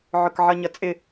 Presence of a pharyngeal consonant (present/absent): present